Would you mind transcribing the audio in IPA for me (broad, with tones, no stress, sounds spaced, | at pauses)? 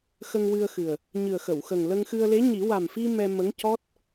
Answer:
x ə˧ ŋ w ɨ˧ ə̯ x ɨ˨˩ ə̯ | ɲ ɨ˨˩ ə̯ x ə˨˩˨ w x ə˨˩ ŋ l ə˧ ŋ x ɨ˧ ə̯ l e˧˥ ɲ i˨˩˦ w a˨˩ m f i˧ m ɛ˧ m ə˧˥ ŋ c ɔ˦˥ t̚